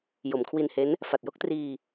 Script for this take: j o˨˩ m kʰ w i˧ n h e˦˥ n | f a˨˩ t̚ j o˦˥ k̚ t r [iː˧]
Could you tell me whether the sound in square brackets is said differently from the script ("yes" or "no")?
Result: no